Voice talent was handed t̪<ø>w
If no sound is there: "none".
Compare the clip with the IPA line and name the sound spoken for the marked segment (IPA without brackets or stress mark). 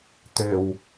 ø